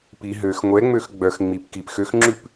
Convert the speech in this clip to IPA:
p i ɦ ø x ŋʷ ɛ ŋ͡m ø x ɡ͡b œ x ŋ͡m i p k i p x ø x ŋ͡ǁ ʉ p

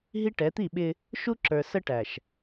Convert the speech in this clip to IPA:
ɦ i˦ ʈ ɛ˨˦ t̪ i˦˨ ɓ ɪ˦ | ʃ u˦ ǁ ə˞˨ s ə˦ ʈ æ˨ ʃ

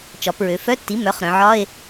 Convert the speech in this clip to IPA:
t͡ʃ ɒ˩˧ p ɹ ø˩˧ f œ˧˥˧ tː i˩˥ m œ˩˥ χ ɾ œ̃˩˧ ʕ ɒ˧˥˧ e̯

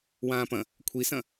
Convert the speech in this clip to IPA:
w ãː p ɐ̃ | kʷʰ i s ɐ̃

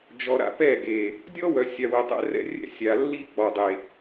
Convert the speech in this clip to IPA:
d͡ʒ ɔ˨ ɾ a̰˦ p ɛ˦˨ ɡ e˨ | dʲ ɔ˦ w œ˨ sʲ a˨ w ə˨ tˤ ɛ̰˦ r ɛ̰˦ rʲ ɛ̰˦˨ sʲ a˨ lː i˦ k͡p ɔ˨ dˤ e˨

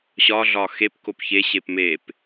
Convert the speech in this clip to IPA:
ɕ ɒ ɮ ɒ x e p k o p ç e ɕ e p m e p

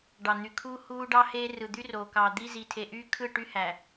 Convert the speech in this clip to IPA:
ɖ ɑ˨ n̪ y˨ kʰ uː˦ h uː˦ ɖ ɑ˦ h eː˦ r ɯ˨ d̪ y˦ r o˨ k ɑ˨ d̪ i˦ z i˨ tʰ e˨ ʔ yː˦ kʰ ɯ˦˨ ʈ y˦ h æ˨

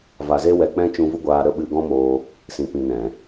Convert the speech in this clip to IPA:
v a˨ z e˧ w ɛ˨ k͡p ɛ̃˦ t͡ʃ ũ˧ v u˦ ɡʷ aː˧ ɾ ə˦ ɓ ɨ˧ ɡ ɔ̃˦ m oː˧ | s ĩ˨ p ĩ˨ n ɛ̃˨

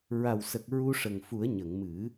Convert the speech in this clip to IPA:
ɹ a˨˩ w s ə˨˩ k̚ ɹ u˧ ʂ ə˨˩ ŋ f u˨˩˦ ə̯ ɲ ə˨˩˨ ŋ m ɨ˨˩˦

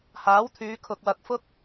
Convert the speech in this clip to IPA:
h aː˨˥ w t̪ʰ yː˨˧ kʰ ʊ˨ k̚ w ɐ˨ k̚ f ʊ˥ k̚

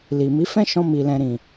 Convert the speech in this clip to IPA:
l i˨ m i˨˦ f ɛ̃˦ ʃ ɔ̃˧ m i˨ l ɛ̃˨ ɾ ĩ˨

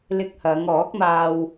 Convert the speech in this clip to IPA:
l ɪ˧ k̚ h ɐ˨˧ ŋ ɔː˨˥ k̚ m aː˧ w

